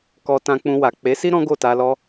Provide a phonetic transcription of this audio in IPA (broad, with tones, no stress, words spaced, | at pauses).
kɔ˧tã˧k͡pũ˧wa˨ k͡pe˨˦si˦ ɾɔ̃˦ɡo˦˨ta˧ lɔ˦